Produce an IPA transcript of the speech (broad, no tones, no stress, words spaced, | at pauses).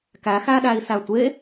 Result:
kæxæɗæi̯ sætʷe